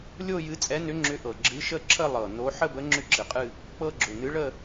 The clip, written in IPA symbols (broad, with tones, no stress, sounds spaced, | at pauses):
lʲ o˥˧ j ɨ˧˥ t͡sʼ ɛ˧˥ n ʏ˧˥ ŋ͡ǁ ʏ˧˥ ʔ ɤ˨˩ ɡ͡ǁ ɨ˧˥ ʃ ə˥˧ ǁʰ ə˥˧ lˠ ɤ˨˩ n o˧˥ ħ ə˥˧ b ə˧˥ ŋ͡ǁ ʏ˥˧ ǁ ɨ˨˩ qʼ ɨ˥˧ | k͡p ɤ˥˧ ɡ͡ǁ ʏ˨˩ n ɨ˧˥ ɭ ə˥˧